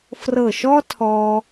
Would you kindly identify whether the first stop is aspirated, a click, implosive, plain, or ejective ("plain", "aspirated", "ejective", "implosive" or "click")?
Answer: aspirated